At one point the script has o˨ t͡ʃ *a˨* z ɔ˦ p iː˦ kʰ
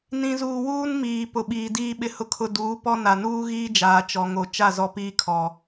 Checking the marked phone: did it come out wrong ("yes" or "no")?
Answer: yes